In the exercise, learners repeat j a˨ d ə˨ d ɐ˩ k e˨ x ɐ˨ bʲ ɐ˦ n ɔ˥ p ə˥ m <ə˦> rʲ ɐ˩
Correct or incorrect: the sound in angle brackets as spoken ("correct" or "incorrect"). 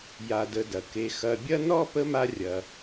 incorrect